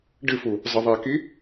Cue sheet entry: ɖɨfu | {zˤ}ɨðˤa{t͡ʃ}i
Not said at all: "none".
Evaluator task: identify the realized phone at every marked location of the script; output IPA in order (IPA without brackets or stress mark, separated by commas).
zˤ, k